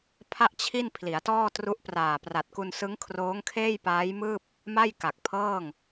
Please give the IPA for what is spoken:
pʰ a˥˩ ʔ t͡ɕʰ i˥˩ n pʰ l i˩˦ a̯ t ɔː˥˩ t r u˦˥ ʔ p r aː˨˩ p r a˨˩ t̚ k u˧ n s ɯ˦˥ ŋ kʰ r oː˦˥ ŋ kʰ eː˥˩ j p aː˦˥ j m ɯː˥˩ p̚ | m a˥˩ j k a˨˩ k̚ pʰ ɤː˥˩ ŋ

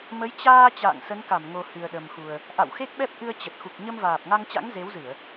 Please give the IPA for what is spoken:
m ə˨˦ j t͡ɕ aː˧ t͡ɕ a̰ː˧˨ ŋ s ə˨˦ n k a˧˩ m ŋ o˨˩ h ɨ˨˩ ə̯ ɗ ə˨˩ m x u˨˩ ə̯ | ʔ a̰˧˨ w x e˦˥ k̚ ɓ ɛ˦˥ p̚ ʔ ɨ˧ ə̯ t͡ɕ ə˨˩ t̚ x u˨˩ k̚ ɲ ə˧ m v aː˨˩ p̚ ŋ a˧ ŋ t͡ɕ a̰˧˥ ŋ z e˨˦ w z ɨ˧˩˨ ə̯

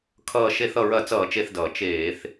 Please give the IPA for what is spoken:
kʰ ʌː˧˩ ʃ e˧˩˧ θ ʌ˧˩ ɹ ɐ˧˩˧ t͡s ʌː˧˩˧ t͡ʃ e˧˩ θ d ʌː˩ t͡ʃ eː˧˩˧ θ

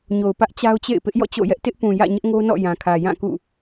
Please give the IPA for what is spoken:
ɲ o˨ ʊ̯ p ä˦ ʔ t͡ɕ a˦ ʊ̯ t͡ɕ ḛ˦˨ ɪ̯ p ɪ˦ ʔ j ɔ̰˦˨ t͡ɕ o̰˦˨ j ɛ˦ ʔ t ɪ˦ ʔ p ũ˨ j ä̰˦˨ ɲ ɪ˦ ʔ ŋ o˦ n ɔ̰˦˨ j ã˨ kʰ ä˨ j ã˦˨ k ṵ˦˨

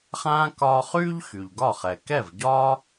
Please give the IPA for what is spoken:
χ ãː˥ k ɒː˧ χ yː˥ ʎ x y˩ ʎ ɡ ɒ˥˩ χ ɛ˩ k ɛ˥˩ v ɟ ɒː˥

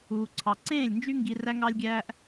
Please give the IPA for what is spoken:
uː˨ ǀʰ ɑ˨ ǀ ẽː˦˨ lʲ n d͡ʒ y˦ ŋ ɡ i˧ r æ˦ ŋ ɑ˦ lʲ ɡʲ æː˦ ʔ

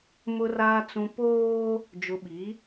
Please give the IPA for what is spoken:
m ʊ˨ r aː˨ t͡s ũ˨ p oː˦ | d͡ʒ ʊ˨ ɓ i˨˦

